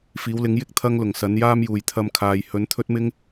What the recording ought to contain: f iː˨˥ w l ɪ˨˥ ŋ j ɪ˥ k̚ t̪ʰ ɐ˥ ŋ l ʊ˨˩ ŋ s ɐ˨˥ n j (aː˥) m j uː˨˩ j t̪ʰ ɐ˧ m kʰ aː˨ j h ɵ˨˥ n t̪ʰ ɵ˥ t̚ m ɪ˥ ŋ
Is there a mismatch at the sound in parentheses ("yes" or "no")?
no